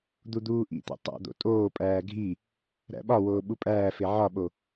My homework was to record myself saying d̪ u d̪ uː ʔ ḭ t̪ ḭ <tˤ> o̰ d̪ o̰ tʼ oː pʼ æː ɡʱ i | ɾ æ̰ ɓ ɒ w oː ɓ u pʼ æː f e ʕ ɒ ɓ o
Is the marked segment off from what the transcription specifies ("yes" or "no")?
no